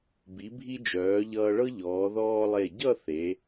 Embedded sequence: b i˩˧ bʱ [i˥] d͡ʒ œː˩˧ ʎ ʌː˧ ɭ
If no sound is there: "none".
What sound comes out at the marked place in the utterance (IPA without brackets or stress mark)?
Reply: i˧